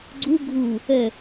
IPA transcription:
ɡ͡ǀ u ɡʱ u | ɛ

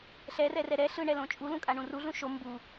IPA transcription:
ɬ ɛ r ɛ r ɛ ɾ ɛ ɬ ɯ ɳ ɛ l õ t͡ʃʼ u l ũ kʼ a ɳ ũ r u ɮ ũ ʃ o m b u

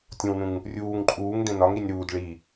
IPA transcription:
tʲ õ w n ũ ŋ | rʲ uː ŋ ǃʼ uː ŋ d ẽ n ɒ ŋ ɾ i nʲ ɾ uː d ɭ i

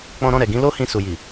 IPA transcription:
k͡p ɔ̃˧ ɾ ɔ̃˧ ɾ ɛ˨ ɡ ĩ˨˦ l o˦ h ĩ˧ s u˨ j i˨

